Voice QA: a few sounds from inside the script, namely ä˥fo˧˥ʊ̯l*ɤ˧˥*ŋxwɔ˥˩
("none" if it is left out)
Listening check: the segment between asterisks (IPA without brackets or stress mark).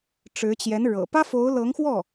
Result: ɤ˧˥